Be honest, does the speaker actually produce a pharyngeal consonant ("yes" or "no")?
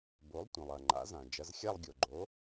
no